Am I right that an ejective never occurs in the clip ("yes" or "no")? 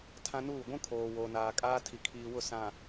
no